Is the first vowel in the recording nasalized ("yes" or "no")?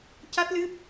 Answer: no